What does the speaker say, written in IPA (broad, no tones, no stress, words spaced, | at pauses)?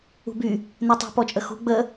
ṳby | nɛtˤṳ pɔt͡ʃʼəxṳ ɡ͡bə